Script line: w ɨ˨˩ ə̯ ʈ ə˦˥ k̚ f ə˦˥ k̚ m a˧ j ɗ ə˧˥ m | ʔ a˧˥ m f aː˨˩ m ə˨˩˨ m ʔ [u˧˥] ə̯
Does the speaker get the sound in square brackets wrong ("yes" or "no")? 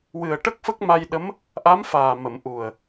yes